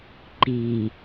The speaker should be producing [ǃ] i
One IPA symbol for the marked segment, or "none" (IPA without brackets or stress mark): ǃ